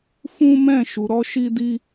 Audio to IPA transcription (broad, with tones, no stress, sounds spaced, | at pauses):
f ũ˦ m ɛ̃˦˨ ʃ u˧ ɾ ɔ˦ ʃ i˦ d i˦